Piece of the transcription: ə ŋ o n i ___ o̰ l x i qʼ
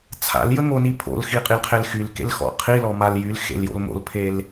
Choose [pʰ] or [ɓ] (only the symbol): pʰ